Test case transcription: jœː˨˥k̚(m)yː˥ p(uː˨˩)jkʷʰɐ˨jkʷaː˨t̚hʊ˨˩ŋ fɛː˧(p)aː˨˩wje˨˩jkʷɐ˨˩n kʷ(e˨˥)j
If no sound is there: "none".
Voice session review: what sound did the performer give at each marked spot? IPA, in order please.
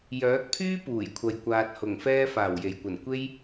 pʰ, uː˨˩, f, e˥

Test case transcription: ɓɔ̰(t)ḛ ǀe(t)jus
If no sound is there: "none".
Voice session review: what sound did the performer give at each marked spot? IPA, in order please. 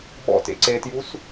t, t

